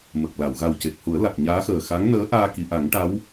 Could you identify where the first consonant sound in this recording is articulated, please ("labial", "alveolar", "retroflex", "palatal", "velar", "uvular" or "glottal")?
labial